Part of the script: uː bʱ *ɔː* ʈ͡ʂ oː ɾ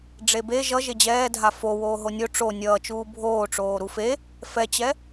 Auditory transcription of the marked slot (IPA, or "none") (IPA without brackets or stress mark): oː